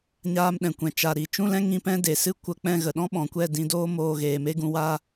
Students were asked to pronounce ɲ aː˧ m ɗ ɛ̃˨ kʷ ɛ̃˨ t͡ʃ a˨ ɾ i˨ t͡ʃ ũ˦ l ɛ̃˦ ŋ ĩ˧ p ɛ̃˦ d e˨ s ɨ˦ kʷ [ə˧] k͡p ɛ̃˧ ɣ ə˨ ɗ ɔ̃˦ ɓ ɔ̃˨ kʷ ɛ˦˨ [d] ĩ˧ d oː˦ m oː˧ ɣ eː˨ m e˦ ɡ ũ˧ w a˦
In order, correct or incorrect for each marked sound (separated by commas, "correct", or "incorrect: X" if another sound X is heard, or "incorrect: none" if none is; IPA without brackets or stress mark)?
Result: correct, correct